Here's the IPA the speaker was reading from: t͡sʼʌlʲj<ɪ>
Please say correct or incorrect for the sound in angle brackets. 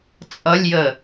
incorrect